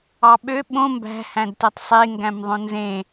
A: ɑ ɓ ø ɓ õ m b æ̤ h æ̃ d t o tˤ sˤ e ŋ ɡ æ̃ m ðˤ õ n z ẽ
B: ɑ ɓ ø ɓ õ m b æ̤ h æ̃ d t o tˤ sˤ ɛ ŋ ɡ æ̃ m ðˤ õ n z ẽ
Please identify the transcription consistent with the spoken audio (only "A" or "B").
A